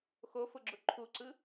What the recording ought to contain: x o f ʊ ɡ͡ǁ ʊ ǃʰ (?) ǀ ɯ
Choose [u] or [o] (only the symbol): u